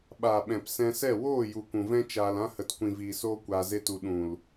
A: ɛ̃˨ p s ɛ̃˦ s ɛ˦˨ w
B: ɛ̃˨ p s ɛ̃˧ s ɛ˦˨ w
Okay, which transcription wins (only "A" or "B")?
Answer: B